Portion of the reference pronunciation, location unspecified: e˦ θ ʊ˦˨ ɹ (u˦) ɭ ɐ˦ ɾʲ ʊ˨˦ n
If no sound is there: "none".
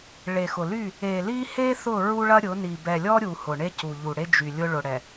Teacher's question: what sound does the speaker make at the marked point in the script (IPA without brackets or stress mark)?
u˦